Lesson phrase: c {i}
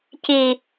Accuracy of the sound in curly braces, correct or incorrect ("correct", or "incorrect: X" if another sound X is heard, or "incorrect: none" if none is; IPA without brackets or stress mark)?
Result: correct